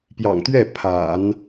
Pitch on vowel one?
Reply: low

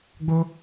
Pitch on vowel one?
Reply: high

